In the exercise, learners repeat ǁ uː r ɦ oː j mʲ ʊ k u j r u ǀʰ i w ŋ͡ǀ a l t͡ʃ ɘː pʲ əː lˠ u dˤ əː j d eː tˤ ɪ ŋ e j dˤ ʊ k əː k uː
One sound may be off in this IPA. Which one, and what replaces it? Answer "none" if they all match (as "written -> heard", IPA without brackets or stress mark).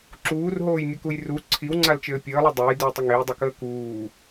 eː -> ɘː